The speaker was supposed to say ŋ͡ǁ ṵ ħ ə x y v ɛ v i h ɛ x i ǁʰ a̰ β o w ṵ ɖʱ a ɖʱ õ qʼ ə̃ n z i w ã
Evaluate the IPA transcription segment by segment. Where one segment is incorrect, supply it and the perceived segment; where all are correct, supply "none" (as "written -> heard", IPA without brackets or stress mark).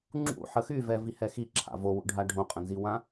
β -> v